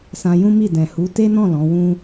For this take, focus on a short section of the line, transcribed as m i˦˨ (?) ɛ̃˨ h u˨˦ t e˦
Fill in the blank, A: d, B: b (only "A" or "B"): A